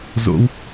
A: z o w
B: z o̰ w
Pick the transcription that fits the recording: B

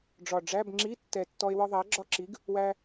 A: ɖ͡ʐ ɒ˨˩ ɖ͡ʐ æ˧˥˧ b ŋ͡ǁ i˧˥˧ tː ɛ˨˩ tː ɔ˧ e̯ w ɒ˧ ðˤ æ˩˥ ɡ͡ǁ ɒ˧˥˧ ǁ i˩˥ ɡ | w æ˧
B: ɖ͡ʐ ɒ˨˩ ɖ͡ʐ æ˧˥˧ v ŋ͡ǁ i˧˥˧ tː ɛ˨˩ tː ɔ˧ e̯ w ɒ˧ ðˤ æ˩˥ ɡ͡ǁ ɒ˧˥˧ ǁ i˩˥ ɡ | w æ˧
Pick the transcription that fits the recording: A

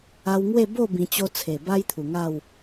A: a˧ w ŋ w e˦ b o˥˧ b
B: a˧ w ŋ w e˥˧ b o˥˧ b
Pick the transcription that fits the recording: B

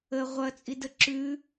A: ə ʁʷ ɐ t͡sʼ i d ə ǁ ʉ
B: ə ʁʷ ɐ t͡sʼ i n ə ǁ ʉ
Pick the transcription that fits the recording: A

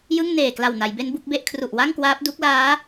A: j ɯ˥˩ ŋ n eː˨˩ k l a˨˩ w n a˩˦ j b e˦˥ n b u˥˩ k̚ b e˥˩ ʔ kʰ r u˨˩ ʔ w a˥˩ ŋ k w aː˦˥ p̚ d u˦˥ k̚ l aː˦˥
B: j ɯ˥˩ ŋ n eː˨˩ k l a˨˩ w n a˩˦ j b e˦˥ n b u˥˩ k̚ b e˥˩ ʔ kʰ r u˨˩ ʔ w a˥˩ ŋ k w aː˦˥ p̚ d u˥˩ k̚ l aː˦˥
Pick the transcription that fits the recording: A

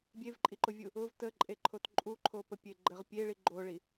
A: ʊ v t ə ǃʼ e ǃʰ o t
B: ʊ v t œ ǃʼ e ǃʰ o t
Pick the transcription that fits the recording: A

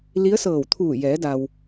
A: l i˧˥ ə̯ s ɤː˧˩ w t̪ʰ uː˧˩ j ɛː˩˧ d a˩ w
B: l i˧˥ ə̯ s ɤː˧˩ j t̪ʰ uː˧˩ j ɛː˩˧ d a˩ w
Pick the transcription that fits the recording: A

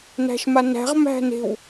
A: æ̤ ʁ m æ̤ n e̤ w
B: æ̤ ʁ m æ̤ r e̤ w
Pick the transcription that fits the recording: A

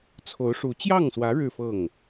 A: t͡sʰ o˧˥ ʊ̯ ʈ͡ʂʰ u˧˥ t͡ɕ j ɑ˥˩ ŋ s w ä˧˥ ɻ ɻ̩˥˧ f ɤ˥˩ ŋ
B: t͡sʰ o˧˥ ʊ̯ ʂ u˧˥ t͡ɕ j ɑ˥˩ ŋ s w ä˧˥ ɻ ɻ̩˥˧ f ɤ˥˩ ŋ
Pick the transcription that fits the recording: B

